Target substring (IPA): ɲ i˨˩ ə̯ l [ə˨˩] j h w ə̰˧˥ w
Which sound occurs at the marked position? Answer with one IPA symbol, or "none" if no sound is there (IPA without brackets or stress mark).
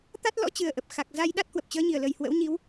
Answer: ə˨˩